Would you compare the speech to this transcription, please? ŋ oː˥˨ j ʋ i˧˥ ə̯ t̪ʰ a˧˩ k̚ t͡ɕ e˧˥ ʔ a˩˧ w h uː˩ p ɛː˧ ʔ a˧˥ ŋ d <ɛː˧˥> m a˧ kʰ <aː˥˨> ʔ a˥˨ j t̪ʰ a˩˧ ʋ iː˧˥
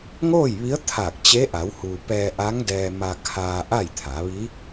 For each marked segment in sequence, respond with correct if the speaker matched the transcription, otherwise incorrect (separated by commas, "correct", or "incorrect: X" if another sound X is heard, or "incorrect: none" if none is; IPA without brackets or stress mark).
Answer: incorrect: ɛː˧, incorrect: aː˧